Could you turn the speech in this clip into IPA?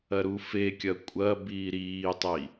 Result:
ɐɾufekʲɐ kʷʼɐ biːɾiːtˤi

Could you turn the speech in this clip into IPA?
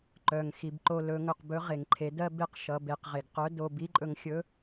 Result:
ǃœ˩ŋ xi˩bǃo˧ lɵ˩˧ŋɵ˩q bɵ˧˥ ʁe˩ŋǃʰe˩˧ dɜ˥ be˥qʃʌ˩˧ be˩˧qʁe˩ɡqœ˧˥ do˧ bi˧˥ǃʼɵ˧ŋxʲɵ˧˥

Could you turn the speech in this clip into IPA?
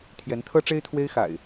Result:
t̪ʰjɛ˨˦nt̪ʰɤ˦ʈ͡ʂe˦ɪ̯ t̪ʰwe˦ɪ̯xa̰˨˩ɪ̯

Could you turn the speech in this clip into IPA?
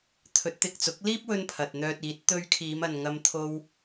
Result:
t̪ʰɵ˨˥t̚t̪ɪ˨k̚t͡sʊ˨˥k̚ liː˥p̚wɵ˧n pʰɐ˨t̚n̪œː˧t̚iː˨˥t̚ t̪ɵ˧ɥkʰiː˨˧mɐ˨n ŋɐ˧m t̪ʰo˧w

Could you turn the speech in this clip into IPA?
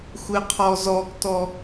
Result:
xʷɪqʰɔzɔɡtɔ

